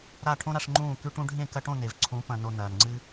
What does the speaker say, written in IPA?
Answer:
ɾ a˦˨ ʈʰ õ˦ ɾ a˧ ʂ ŋ͡ǃ ũː˦˨ k ʉ˧ ʈ ũ˧ ɖʱ ẽ˦˨ k ɐ˧ ʈ õ˦˨ n e˨ v ǀʰ ũ˨˦ p ɐ̃˨ n o˨ n ɐː˨ n ŋ͡ǀ ɨ˦

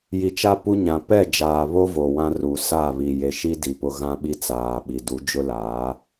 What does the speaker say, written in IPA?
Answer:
j i˨ t͡ʃ a˦ p u˦ ɲ ã˨ p ɛ˦˨ d͡ʒ aː˨ β o˦ v o˨ w ã˦ r u˨ s a˦˨ β i˨ j e˨ ʃ i˦ d i˨ p ʊ˦ ɣ ã˦ ɓ i˦ t͡s aː˨ ɓ i˨ d u˨˦ d͡ʒ ʊ˦ l aː˨˦

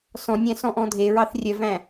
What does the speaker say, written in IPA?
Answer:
s ɔ̃ nʲ æ̃ s ɔ̃ ʔ ɔ̃ dʱ e ɹ ɑ θ rʲ œ v æ̃

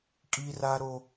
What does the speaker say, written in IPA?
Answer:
kʼ i˦ r a˦ ɾ o˦

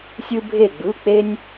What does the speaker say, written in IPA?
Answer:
sʲ ɯ˧ bʱ e˧˩ ɡ͡b ɯ˩˧˩ k͡p e˧ nʲ

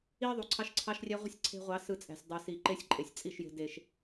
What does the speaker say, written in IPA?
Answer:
i˦ ðˤ u˨ ǀʰ ɑ˦ ʃ ǀʰ ɑ˦ ʃ rʲ æ˦ ʁʷ e̤˦ sʲ ǀʰ e̤˧ ʁʷ ɑ˨˦ s ɯ˧ t͡sʼ æ̤˨ sʲ dˤ ɯ˨ s i˨ ǃ e˦ sʲ ǃʼ e˨ sʲ t͡sʼ i˦˨ ʃ j e̤˧ d e˨ ʃ

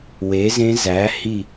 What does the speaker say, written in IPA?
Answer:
w e˩˥ z ẽ˦˥ z æ˩˥ h i˥˨

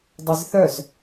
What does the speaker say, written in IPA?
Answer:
dˤ ɛ z θ œ z

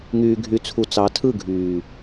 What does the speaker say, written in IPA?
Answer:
ŋ yː˨ ɡʱ y˨ t͡sʰ u˨ t͡s ɑ˨˦ tʰ ɯ˦˨ ɡʱ yː˨

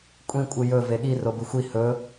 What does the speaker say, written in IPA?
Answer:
kʷʼ ĩ kʷʼ ɨ j ɵ v e ɠ i r o b ɨ xʷ i h ɵ

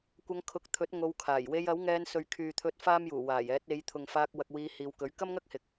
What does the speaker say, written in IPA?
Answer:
kʷ ɐ˧ ŋ kʰ ʊ˨˥ k̚ t̪ʰ ɵ˨˥ t̚ ŋ o˧ w kʰ aː˨˩ j w e˧ j ɐ˨˥ w ŋ ɛː˧ n s ɵ˨ ɥ kʰ yː˨ t̪ʰ ɵ˧ t̚ f aː˥ m j uː˨˩ w aː˨˩ j ɛː˨˥ t̚ e˨˧ j t̪ʰ ʊ˨ ŋ f aː˧ k̚ w ɐ˧ k̚ w iː˧ h iː˨˧ w k ɵ˨˥ ɥ k ɐ˥ m ŋ ɐ˥ k̚ h ɪ˨ k̚

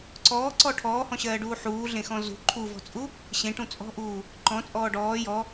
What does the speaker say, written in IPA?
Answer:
ǀ ɔː ǀ ɔ ʈʰ ɔː h ɔ̃ ɕ ɜː ɖ uː ħ uː ɮ ẽ x ɔ̃ z ṳ ǃʰ u v ɔ̤ t͡sʼ u | ɕ ẽ ʈ ũ t͡sʼ ɔ̤ ʔ uː | ǃ ɔ̃ t͡sʼ ɔː ɖ ɔː j ɔ

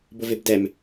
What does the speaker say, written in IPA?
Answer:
b ʊ v ɪ b d ɛ m

